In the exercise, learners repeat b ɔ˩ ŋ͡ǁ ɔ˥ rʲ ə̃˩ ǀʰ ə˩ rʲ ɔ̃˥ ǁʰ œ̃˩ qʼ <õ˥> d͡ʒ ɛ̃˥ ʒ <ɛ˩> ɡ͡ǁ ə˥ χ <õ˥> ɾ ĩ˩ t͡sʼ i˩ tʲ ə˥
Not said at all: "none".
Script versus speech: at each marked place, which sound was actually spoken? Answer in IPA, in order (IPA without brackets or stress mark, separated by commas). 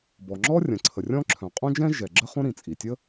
õ˥, ɛ˩, õ˥